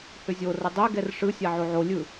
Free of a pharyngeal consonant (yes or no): no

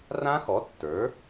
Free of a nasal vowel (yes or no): no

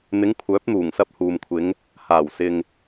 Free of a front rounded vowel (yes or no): no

